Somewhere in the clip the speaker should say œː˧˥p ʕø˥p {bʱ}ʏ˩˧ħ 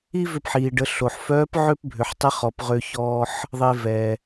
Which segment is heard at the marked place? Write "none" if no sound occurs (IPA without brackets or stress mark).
bʱ